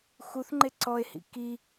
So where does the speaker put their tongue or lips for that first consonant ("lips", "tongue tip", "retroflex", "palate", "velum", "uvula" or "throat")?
velum